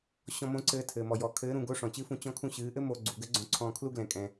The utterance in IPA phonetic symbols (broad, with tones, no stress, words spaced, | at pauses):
ɕɔ̃˧mõ˧˥ǀɘː˧ tʰɘː˩mɔ˩jɔ˩˧ kʰɘː˧˥ɾũ˧ ɡo˧˥ʂɔ̃˩t͡ɕɨ˧˥fũ˧ t͡ɕɔ̃˧ kʰũ˧ɕɨː˩˧ʔɘ˥ mo˧ ɡ͡ǀu˩˧ɡɘ˧˥ ɡ͡ǀõ˧ǀʰɔ̃ː˧kʰlu˥ ɡlɛ̃˩˧kʼɛ̃˩